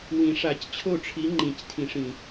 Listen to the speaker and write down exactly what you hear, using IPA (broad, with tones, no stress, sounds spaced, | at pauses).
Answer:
w ĩ˨˩˦ ʂ a˨˩˦ c t͡ɕʰ o˥˨ ʈ͡ʂʰ i˨˥ ŋ͡ǃ ĩ˨ c tʰ ĩ˨˩˦ ʂ ĩ˨